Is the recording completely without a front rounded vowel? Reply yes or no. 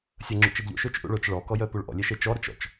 no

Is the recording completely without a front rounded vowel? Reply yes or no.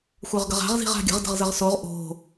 no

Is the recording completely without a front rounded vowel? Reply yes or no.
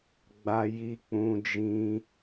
yes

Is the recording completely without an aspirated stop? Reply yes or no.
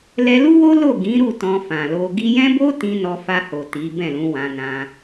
yes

